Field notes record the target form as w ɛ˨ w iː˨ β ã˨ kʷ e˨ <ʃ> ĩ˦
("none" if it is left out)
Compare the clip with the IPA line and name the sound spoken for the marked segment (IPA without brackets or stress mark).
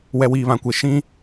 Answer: ʃ